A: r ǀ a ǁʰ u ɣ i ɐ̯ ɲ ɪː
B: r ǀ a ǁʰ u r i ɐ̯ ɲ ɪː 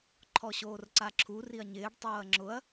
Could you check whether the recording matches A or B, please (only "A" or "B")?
B